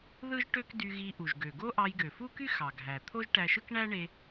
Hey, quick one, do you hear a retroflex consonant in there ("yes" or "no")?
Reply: yes